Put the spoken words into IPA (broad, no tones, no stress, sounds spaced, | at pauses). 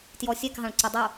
t j ɔ sʲ ɛ k ɦ ɑ̃ ɭ ǀ ɪ dˤ u